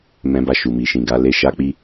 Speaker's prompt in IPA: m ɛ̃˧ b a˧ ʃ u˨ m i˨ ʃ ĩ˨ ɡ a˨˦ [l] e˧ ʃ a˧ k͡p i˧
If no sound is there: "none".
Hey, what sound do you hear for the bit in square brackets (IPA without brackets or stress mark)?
l